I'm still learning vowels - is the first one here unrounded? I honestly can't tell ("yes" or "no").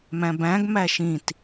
yes